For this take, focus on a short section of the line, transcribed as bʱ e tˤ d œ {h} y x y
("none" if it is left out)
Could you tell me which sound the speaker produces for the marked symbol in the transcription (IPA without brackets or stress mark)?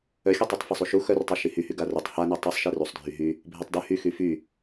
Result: h